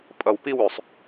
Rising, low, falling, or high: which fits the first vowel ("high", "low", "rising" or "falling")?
low